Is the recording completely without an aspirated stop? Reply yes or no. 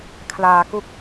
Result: no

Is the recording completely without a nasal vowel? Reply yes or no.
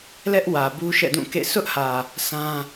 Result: no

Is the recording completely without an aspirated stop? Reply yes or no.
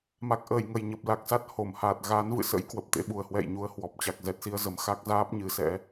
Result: yes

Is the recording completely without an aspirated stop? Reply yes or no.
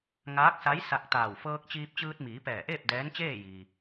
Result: yes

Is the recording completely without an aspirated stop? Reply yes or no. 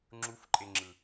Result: yes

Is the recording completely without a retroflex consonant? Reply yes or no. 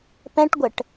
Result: no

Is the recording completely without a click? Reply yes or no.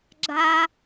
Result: no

